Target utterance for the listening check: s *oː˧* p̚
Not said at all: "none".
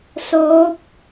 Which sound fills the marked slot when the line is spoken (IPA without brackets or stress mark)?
oː˧˥